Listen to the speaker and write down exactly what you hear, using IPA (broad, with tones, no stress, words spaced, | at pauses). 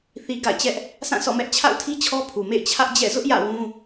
θi˨ ɡa̰˦˨ɪ̯t͡ɕɛ˦ʔ | sã˦˨sɔ̰˦˨mɛ˦ʔ t͡ɕʰa̰˦˨ʊ̯tʰi˦ t͡ɕʰɔ˦pʰu˨mḛ˦˨ɪ̯ t͡ɕʰä˦ʔd͡ʑɛ̰˦˨ zʊ˦ʔ jä̰˦˨wũ˦